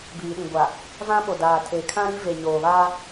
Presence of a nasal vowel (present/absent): present